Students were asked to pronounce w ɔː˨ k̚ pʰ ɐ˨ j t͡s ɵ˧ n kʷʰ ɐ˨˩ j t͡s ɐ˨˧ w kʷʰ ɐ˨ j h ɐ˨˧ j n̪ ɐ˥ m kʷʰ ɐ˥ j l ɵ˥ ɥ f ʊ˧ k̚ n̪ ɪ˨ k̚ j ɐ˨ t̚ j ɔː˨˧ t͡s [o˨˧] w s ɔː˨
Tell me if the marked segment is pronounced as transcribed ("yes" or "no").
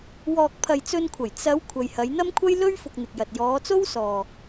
no